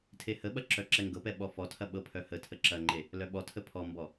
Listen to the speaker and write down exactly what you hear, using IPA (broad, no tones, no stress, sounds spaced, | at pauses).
tʰ e h ə ɓ ɐ ǁ œ ǁ ɛ ŋ ɡ ɤ p ɛ ɓ ɔ f ɔ tʰ ɐ ɓ ɤ pʰ œ h ə tʰ ə ǁ ɐ ŋ͡ǃ e | l œ ɓ ɔ tʰ ə pʰ ɔ m b ɔ